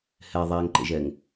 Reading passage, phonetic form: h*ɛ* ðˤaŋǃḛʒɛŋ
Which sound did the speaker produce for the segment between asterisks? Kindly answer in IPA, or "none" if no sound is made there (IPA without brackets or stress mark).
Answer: ɛ